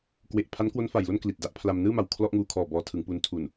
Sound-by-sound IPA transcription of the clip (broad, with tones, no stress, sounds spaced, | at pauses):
k w e˨˩ ʔ pʰ a˦˥ n k w o˦˥ n f a˨˩ j l o˥˩ n k l i˨˩ t̚ d a˦˥ ʔ pʰ l a˧ m n ɯː˥˩ m a˨˩ w kʰ l ɔ˥˩ ʔ ŋ uː˦˥ kʰ ɔː˨˩ b ɔː˧ tʰ ɯ˩˦ ŋ p u˧ n tʰ u˨˩ n